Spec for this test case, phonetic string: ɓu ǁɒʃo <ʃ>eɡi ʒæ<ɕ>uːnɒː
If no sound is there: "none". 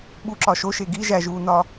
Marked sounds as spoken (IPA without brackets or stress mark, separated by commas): ʃ, ʒ